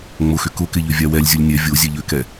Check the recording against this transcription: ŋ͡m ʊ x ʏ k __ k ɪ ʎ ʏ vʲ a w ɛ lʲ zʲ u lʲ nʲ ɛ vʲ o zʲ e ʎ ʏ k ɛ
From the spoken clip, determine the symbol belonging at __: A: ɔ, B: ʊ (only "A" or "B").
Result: B